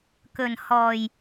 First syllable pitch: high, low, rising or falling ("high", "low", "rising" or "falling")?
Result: low